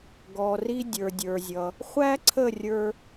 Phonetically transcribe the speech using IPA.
ɡ ɔ˩ r i˧ dʲ ə˞˩ dʲ ə˞˩ zʲ ʌ˩ | χʷ æ˥ ǀʰ ə˥˩ rʲ ə˞˧

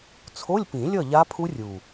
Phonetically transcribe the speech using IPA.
t͡sʰ o˧˥˧ lʲ p ĩ˨˩˦ lʲ ʌ˥˨ ʎ a˦˥ pʰ u˦˥ rʲ u˨˩

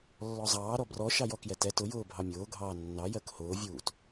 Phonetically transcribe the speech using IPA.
lː ɔ zˤ ɑː ɾ ɔ b r ɔ ʃ ɑ j ɔ k j ɛ t ɛ t ʊ j ʊː bʱ ɑ mʲ ʊː ɡʱ ɑː nː ɑ j ɜ k h ʊː vʲ uː t

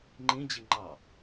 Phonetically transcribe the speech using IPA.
ŋ͡ǃ ĩ d͡ʑ i ŋ͡ǃ ɑ

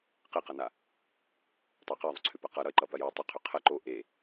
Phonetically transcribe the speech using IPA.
q e q ʌ n a | tˤ a q e ðˤ ʏ ǀʰ ʏ p ɐ q ʌ ɾ ʌ e̯ ǃ ʌ p ɐ j ʏ o̯ tˤ ʏ qʰ ʏ qʰ ɐ ǃ o ʔ e

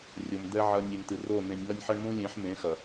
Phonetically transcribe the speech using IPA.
rʲ o˨ m d̪ ɛ˨ ʕ ɐ˨ nʲ e˨ m t̪ ɨ˨ r o˦˨ n̪ ẽ˨ nʲ ŋ ɐ˦ nʲ ħ ɐ˦ ɳ m ũ˦ lʲ ẽ˨˦ ħ m ẽ˨˦ x ɐ˨

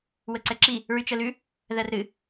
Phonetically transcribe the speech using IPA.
w ə ǀ ɛ ǁ i | ɹ y t͡ʃ ə l ʉ | ð ɜ r ɾ ɨ

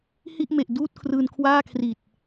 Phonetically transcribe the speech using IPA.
h i˥˩ ʔ m e˨˩ ʔ d uː˥˩ t̚ kʰ r ɯː˧ n kʰ w aː˥˩ kʰ r i˨˩ t̚

